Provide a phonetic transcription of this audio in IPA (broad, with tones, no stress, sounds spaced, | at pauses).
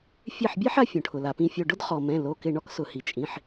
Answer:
fʲ e˧˩ ħ bʲ e˦ ħ a˦ fʲ õ˩ ʈʰ ʊ˩ l a˩ p ĩ˧˩ fʲ o˧˩ ɖ ʊ˦ d χ ɔ˩ m ɛ̃˩˧˩ l o˩˧˩ k ɪ˧˩ ɳ ɔ˦ k s ʊ˩ h i˩ t͡ʃʼ ĩ˩˧˩ ħ